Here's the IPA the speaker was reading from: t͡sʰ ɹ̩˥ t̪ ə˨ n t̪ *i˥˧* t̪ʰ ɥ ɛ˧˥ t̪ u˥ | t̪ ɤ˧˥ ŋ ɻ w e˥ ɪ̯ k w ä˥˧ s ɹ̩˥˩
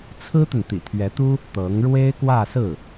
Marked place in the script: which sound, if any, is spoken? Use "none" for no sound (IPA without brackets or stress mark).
ḭ˨˩